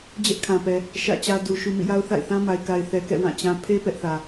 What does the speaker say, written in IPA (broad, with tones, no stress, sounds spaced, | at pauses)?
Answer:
d͡ʑ ɛ˦ ʔ kʰ ã˨ p ɛ˨ | ʃ ä̰˦˨ t͡ɕ ä˦ d u˨ ʃ u˨ m ḭ˦˨ j a˦ ʊ̯ θ a̰˦˨ ɪ̯ θ ã˦ m a˨ ɪ̯ k a˨ ɪ̯ θ ɛ˨ k ɛ̰˦˨ w ã˦˨ t͡ɕ ã˦ pʰ e˦ p ɛ˦ ʔ θ ä˨